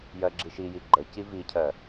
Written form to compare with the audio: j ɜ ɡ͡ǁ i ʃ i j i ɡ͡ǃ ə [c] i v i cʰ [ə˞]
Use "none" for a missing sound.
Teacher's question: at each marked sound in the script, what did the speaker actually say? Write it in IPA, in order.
c, ɜ

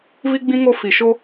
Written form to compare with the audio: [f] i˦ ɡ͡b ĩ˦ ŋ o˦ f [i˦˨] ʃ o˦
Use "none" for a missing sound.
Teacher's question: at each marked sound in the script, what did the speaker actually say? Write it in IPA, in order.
v, i˨

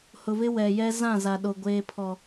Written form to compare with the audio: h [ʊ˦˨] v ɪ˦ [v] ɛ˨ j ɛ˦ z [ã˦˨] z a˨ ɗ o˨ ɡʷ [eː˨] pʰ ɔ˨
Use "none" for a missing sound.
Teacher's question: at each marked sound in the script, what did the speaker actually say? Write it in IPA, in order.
ʊ˨, w, ã˦˨, eː˨

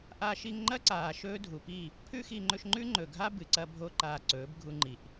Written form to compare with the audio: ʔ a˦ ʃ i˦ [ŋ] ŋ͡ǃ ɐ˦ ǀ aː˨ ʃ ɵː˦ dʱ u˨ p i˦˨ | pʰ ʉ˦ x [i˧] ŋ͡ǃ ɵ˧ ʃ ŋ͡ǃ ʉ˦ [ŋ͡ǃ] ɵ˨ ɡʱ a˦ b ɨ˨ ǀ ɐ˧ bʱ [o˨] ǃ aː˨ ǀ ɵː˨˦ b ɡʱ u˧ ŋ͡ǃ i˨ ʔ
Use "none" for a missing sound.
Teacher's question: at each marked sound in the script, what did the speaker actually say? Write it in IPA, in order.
ŋ, i˧, ŋ͡ǃ, o˧

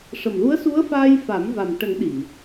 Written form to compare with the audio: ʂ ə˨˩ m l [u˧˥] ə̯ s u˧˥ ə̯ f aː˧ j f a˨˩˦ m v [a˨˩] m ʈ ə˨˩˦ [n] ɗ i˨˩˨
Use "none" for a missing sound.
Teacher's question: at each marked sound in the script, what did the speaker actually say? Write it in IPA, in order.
u˧˥, a˨˩, ŋ

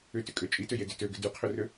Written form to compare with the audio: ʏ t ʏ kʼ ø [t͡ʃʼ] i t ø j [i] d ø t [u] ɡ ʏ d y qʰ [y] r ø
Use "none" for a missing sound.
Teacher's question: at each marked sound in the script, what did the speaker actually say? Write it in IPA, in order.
t͡ʃʼ, e, ø, ʏ

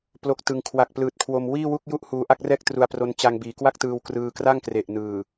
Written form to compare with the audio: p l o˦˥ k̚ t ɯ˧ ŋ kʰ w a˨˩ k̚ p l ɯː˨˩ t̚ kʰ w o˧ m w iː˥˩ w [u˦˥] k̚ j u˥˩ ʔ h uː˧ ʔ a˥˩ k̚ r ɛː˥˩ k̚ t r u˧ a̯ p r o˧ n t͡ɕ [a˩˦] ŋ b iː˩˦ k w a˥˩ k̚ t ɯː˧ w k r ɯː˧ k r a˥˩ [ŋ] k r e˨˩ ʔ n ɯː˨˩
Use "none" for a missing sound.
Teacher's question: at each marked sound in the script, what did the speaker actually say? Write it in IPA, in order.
u˥˩, a˧, ŋ

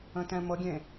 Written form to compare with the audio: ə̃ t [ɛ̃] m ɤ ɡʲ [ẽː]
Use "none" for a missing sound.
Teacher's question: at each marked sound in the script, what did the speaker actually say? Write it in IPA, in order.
ɛ̃, ẽ

